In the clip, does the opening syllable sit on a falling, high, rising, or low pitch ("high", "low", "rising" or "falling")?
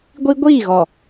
high